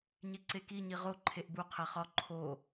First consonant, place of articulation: palatal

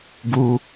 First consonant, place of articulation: velar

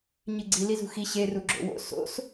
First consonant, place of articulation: palatal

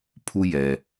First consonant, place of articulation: labial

